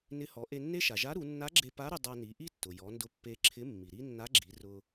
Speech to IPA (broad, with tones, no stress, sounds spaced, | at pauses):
n ɪ˧˥ h ɔ˩˧ ʔ e˧ nː e˥ ʃ a˩ ʒ a˧˥ ɾ u˩˧ nː a˧˥ ɡ͡ǁ e˧ p a˧˥ ɾ ʊ˧ dˤ a˧ n i˩˧ ʔ i˥ tː ʊ˩ j ɔ˩˧ n d ʊ˧ pː e˧ ǁʰ ɪ˧˥ mː i˩ ɾ i˥ nː a˧˥ ɡ͡ǁ i˩˧ r ʊ˧